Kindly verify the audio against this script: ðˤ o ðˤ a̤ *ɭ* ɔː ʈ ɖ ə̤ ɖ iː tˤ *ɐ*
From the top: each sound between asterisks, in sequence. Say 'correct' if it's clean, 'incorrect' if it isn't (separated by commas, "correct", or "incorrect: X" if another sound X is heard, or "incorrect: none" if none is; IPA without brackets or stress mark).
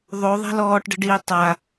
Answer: incorrect: l, incorrect: a